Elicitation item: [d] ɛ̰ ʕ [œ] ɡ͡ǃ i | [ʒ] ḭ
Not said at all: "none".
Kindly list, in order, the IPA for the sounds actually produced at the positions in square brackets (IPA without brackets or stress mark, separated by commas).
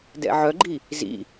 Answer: d, œ, z